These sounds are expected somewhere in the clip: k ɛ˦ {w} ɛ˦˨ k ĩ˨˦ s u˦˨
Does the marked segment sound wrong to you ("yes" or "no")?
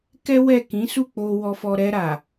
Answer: no